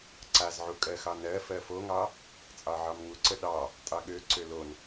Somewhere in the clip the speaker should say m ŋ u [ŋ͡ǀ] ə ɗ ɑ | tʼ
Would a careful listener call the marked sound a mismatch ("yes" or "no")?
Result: yes